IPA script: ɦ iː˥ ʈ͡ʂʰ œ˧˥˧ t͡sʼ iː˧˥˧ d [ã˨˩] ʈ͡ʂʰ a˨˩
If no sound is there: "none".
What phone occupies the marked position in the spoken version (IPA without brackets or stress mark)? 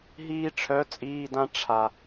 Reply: ã˥